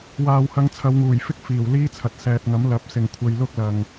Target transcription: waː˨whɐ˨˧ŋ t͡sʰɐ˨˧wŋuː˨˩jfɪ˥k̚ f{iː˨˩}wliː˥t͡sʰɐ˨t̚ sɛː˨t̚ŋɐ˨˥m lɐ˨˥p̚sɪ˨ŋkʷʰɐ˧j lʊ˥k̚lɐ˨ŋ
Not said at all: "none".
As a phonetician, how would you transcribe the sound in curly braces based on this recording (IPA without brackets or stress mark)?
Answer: iː˨˩